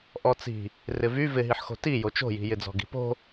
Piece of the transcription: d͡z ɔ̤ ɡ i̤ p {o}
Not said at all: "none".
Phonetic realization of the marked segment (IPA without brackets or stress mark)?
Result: o̤